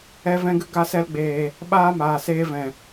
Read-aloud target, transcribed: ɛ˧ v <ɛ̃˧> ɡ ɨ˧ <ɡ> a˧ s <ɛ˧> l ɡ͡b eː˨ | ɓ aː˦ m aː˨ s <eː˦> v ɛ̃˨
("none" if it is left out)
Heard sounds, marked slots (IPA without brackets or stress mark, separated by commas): ɛ̃˧, ɡ, ɛ˧, eː˧